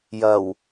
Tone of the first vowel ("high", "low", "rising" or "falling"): low